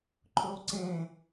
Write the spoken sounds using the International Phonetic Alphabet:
ǃʰ ɵ o̯ ǀ ẽ

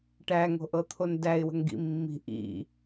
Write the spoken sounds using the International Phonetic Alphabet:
ʈ æ ŋ o̤ ʔ ɤ t̪ʰ o n d æ ɪ̯ w ə̤ ŋ ɡ ḭ mː i̤ ʔ ḭ

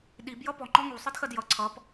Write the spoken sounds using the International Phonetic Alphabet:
ɗ i b j ʌ p ɔ ŋ͡ǃ ɔ ŋ u sˤ ɨ d x ɜ d j ʌ ǀʰ ʌ p

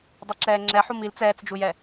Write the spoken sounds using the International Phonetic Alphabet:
dˤ e ǁ ɛː ŋ͡ǁ ɛ ħ u m i l t͡s ɛː t͡s d͡ʒ u j ɛ

